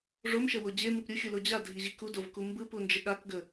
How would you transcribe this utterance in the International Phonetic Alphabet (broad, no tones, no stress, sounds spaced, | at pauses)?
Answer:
ʐ o m ʃ ə w o d͡ʑ e m ɯ p ɾʲ u xʲ u l o d͡ʑ a dʱ i ʑ i k u d o v k u m b ɯ p u n d͡ʒ ə ɠ a k ɡ ə